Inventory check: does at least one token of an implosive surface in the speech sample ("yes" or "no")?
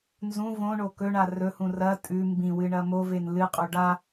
no